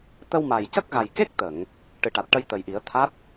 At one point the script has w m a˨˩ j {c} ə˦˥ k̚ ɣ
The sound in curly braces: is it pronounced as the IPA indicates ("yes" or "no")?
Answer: yes